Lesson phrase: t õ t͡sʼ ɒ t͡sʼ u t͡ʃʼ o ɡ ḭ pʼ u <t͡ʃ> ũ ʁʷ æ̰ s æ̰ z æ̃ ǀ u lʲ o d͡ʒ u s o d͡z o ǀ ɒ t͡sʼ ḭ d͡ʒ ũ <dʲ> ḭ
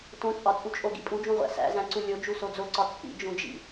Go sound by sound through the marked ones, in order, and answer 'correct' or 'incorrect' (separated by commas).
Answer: incorrect, incorrect